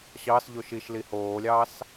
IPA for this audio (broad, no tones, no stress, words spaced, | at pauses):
ɕɑsʎoʃ iʃli hoːlʲɑːs